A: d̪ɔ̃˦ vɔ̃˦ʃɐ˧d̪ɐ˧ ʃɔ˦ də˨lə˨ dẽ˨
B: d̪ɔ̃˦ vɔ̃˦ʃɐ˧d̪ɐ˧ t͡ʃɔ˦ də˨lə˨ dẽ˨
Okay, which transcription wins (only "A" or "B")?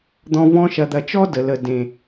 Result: B